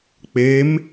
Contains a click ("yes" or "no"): no